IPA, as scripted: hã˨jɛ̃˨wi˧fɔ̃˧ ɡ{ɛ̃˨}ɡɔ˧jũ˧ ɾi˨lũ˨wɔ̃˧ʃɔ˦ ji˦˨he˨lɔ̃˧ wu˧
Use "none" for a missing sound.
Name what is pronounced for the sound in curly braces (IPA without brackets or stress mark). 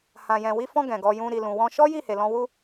ɛ̃˨